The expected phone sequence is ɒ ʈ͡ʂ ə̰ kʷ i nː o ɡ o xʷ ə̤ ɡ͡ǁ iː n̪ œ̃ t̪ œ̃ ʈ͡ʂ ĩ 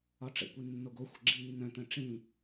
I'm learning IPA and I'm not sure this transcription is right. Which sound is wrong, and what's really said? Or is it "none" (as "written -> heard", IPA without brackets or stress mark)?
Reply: none